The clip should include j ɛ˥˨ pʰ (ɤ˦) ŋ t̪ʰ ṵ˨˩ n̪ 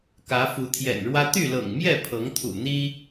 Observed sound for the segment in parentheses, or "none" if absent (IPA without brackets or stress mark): ɤ˨˦